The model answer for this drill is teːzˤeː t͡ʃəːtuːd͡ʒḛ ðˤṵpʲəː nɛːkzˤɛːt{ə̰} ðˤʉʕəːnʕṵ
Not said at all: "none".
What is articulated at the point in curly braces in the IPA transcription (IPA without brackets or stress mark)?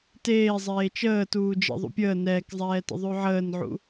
ə̰